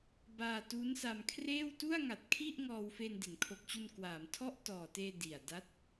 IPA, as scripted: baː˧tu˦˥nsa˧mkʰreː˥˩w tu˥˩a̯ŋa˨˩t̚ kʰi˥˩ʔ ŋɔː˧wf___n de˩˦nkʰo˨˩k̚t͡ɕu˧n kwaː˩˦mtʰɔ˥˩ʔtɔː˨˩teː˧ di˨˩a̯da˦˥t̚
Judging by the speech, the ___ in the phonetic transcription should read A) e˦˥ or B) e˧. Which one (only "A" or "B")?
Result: B